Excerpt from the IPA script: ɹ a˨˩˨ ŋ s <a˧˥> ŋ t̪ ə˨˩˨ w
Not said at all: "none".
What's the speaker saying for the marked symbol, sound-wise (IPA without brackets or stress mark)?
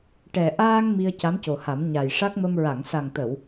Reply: a˨˩